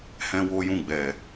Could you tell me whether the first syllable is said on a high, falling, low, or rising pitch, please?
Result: high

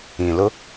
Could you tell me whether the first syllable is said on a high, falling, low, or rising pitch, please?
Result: low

